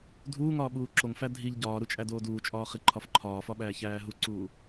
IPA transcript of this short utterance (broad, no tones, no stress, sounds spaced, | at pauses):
dʱ uː ŋ ɒː ɓ uː ǁ o ŋ f æ dʱ i ʎ ɟ ɒː ɾ u t͡ʃʼ æ d oː d uː t͡ʃʼ ɒː χ i ǃʰ ɒ f ǃʰ ɒː f ɒ ɓ æː ç æː ɦ u ǀ uː